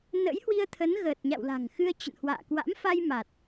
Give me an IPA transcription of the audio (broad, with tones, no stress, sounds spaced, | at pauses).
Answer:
n ə̰˧˥ j h w i˧ ə̯ t̪ʰ ə˨˦ n ɣ əː˨˩ t̚ ɲ a̰˧˨ w l a̤˨˩ ŋ x ɨ˧ ə̯ t͡ɕ ə̰˧˨ n h w a̰ː˧˨ k w a̰˧˥ m f a˧ j m a˨˩ t̚